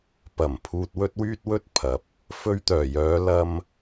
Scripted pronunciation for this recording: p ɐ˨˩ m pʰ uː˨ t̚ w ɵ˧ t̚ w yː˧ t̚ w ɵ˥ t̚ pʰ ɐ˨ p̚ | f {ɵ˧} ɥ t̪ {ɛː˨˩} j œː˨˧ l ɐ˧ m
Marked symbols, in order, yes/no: yes, no

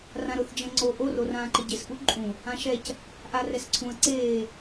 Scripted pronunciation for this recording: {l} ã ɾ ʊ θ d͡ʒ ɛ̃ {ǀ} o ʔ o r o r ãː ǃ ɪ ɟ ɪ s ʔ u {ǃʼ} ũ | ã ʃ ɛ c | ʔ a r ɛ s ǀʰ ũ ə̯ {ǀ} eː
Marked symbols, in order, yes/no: no, no, yes, yes

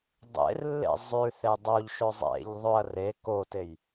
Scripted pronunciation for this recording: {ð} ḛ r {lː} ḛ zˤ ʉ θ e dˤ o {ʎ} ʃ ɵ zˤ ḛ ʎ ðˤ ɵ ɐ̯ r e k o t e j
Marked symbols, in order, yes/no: no, yes, yes

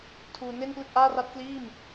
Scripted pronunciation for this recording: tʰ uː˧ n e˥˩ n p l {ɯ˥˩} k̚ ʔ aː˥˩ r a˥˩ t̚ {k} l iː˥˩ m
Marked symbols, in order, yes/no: yes, yes

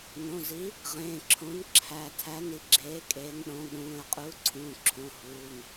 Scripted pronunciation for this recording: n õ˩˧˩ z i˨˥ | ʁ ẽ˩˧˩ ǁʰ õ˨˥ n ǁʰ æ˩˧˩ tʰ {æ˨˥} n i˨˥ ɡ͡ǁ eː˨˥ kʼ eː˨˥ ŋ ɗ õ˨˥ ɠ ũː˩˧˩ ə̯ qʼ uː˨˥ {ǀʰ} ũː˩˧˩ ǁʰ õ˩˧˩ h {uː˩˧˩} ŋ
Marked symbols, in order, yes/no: yes, yes, yes

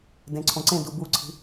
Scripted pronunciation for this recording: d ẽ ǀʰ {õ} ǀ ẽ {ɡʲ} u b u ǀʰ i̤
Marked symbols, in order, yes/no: yes, no

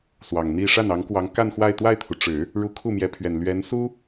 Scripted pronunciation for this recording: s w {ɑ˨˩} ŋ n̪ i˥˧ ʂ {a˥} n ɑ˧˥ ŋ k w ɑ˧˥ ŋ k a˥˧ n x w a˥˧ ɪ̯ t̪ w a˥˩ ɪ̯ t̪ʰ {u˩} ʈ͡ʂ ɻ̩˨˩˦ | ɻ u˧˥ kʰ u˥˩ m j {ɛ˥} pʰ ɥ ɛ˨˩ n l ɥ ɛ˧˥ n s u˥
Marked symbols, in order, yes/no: yes, no, yes, no

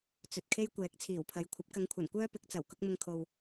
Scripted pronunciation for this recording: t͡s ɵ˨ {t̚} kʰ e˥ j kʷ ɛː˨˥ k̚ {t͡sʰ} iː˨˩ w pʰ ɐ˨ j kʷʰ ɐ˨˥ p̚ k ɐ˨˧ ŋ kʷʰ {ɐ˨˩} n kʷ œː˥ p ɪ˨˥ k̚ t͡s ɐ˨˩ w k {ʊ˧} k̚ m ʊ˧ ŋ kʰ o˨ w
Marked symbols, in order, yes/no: yes, yes, yes, no

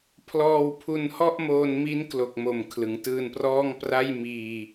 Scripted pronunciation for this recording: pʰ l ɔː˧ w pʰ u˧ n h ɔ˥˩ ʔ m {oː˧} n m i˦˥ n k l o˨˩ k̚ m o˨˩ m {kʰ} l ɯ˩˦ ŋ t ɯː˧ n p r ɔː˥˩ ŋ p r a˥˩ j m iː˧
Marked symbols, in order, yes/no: yes, yes

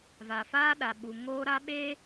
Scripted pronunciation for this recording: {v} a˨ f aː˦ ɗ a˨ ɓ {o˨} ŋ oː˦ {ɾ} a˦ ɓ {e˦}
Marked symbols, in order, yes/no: yes, no, yes, yes

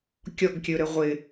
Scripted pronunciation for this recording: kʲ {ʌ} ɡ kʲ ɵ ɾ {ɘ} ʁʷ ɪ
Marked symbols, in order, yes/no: no, yes

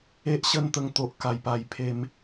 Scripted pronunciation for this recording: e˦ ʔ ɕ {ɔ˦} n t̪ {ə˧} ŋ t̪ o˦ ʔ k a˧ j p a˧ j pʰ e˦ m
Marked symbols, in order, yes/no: no, yes

